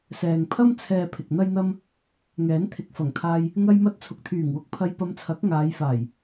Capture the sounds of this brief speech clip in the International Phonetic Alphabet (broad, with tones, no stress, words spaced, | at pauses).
sɛː˨ŋpʰɐ˥m t͡sʰɛː˨ pʰɪ˨k̚n̪ɐ˥jn̪ɐ˥m | ŋɛː˨˥nt̪ʰɪ˨˥k̚fɐ˨˩ŋt̪ʰaː˧j | ŋɐ˧jmɐ˧t̚ t͡sʰʊ˨k̚t̪ʰyː˨˩ŋwʊ˧k̚pʰɐ˧j pɐ˧mt͡sʰɐ˨˥k̚ ŋaː˨˧jfaː˨˩j